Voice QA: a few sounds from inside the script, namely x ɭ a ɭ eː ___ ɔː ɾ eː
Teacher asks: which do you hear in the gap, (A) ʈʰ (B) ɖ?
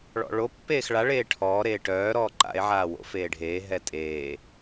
A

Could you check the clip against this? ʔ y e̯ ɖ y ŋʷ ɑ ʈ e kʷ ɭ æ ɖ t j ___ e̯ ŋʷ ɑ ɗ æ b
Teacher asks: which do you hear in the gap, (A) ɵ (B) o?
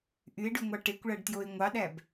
B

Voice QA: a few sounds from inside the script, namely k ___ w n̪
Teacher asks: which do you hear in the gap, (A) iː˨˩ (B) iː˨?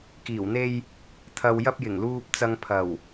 A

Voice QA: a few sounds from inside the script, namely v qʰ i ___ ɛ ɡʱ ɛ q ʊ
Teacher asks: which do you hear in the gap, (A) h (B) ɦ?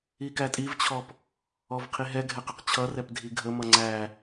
B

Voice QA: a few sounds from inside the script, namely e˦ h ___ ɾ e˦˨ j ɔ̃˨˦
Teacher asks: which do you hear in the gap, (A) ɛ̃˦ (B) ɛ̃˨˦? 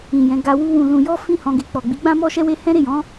A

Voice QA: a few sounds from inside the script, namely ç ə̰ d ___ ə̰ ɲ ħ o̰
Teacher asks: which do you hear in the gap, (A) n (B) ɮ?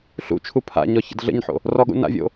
B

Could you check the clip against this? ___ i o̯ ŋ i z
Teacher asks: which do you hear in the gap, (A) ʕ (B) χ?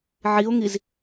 A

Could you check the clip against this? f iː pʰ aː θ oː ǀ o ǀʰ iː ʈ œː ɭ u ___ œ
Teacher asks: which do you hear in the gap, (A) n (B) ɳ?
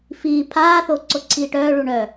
B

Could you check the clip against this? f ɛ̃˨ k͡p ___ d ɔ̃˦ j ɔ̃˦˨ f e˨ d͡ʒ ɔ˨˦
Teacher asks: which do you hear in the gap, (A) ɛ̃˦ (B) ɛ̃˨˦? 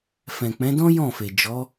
B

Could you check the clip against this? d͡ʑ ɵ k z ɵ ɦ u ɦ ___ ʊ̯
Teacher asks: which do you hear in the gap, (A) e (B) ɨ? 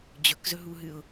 B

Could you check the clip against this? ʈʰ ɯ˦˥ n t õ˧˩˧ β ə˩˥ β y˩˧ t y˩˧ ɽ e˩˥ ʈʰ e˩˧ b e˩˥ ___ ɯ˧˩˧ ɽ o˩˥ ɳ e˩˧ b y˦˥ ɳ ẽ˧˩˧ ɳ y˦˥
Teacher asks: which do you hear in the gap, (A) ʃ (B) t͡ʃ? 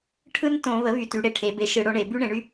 A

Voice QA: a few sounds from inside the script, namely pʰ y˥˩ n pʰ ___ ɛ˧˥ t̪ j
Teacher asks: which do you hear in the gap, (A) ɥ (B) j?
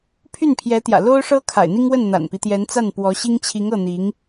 B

